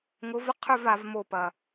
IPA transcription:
ŋ ʊ˨˦ v ə˦ qʰ ʏ˦˨ v a˨˦ v m o˦˨ p ɐ˨

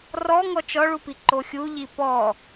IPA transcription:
r ɔ ŋ ɔ t͡ʃ ɔ ɭ u p i ǃ o xʲ u ʎ i p ɔ

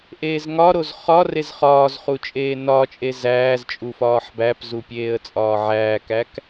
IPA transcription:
ʔ eː z ŋ ɒ ɾ o z χ ɒ r e z χ ɒː z χ u t͡ʃʼ eː n ɒ t͡ʃʼ e z æː z t͡ʃʼ u f ɒː ħ b æ p z u pʲ eː ə̯ t͡sʼ ɒː ʕ æː k æ k

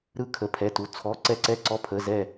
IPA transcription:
ɾ ɯ˥˧ kʰ ə˧˥˧ pʰ ɛ˧˥˧ t u˧˥˧ t͡sʰ ɔ˧˥˧ ǀ ɛ˥˧ ǀ ɛ˥˧ ǀ ɔ˧˥˧ pʰ ə˧˥˧ z ɛ˥˧

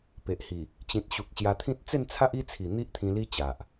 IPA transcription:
p e˨ ʔ h i˨˩ | t͡ɕ ĩ˨ t̚ ɕ u˨ k̚ ɕ j a˧ t̪ʰ ĩ˦ t̚ t͡s e˥˧ n t͡sʰ a˦ ʔ i˥˧ t͡sʰ i˨˩ n̪ i˦ ʔ t̪ʰ ĩ˧ l i˦ t͡ɕ a˨ ʔ

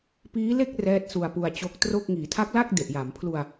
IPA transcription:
p iː˦˥ l e˥˩ k̚ r ɛː˦˥ t̚ s u˧ a̯ p u˧ a̯ t͡ɕ o˦˥ k̚ t r o˥˩ k̚ ŋ iː˩˦ tʰ a˦˥ k̚ l a˥˩ k̚ d e˨˩ ʔ j a˩˦ m pʰ l u˧ a̯

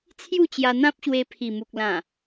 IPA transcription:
t͡sʰ j u˥˧ t͡ɕ j a˧ n̪ ã˦ p̚ ɕ w e˧ pʰ i˨˩ m u˨ k̚ l ã˨˩

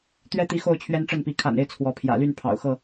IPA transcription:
t̪ ɥ ɛ˦ t̪ i˨˦ x o˥˨ ʊ̯ t͡ɕʰ ɥ ɛ˦ n ʈ͡ʂ ə˥˨ n p i˨˦ kʰ a̰˨˩ n e˦ ɪ̯ t͡sʰ w ɔ˨˦ pʰ j ä̰˨˩ l y˥˨ n pʰ ɑ̰˨˩ ʊ̯ x ɤ˥˨

